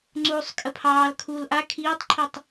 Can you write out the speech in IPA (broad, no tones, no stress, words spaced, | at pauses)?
ŋ͡ǀuːsˤkʼəpʰɑːl kʰuːlʔa kʰiːtˤǃʰitˤ